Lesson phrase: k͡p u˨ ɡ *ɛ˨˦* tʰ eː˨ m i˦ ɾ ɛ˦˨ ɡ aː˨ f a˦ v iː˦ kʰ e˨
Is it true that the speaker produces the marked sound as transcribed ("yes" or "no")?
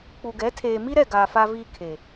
yes